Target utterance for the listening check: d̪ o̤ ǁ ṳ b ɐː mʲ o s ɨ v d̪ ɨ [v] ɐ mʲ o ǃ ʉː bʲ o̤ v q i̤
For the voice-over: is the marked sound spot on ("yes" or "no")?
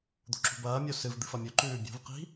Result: no